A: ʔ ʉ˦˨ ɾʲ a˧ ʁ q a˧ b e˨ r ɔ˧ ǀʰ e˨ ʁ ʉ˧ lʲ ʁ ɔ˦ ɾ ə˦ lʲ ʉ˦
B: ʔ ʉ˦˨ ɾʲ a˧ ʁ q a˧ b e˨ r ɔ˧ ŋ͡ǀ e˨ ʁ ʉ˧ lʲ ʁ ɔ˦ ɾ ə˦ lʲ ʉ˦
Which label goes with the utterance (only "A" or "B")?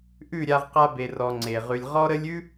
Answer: B